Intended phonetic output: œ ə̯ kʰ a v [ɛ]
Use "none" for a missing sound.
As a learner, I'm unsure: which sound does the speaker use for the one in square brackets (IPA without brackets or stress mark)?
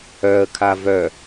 œ